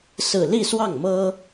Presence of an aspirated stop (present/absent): absent